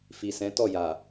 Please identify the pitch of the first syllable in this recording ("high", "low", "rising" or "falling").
low